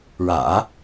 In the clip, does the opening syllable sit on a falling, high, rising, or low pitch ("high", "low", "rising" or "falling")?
low